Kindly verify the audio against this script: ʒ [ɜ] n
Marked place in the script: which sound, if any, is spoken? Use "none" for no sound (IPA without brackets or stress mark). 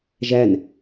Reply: æ